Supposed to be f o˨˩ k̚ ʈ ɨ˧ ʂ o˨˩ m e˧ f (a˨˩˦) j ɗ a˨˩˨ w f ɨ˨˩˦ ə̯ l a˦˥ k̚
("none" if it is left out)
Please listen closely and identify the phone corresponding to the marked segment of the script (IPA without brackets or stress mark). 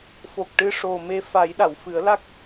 a˨˩˦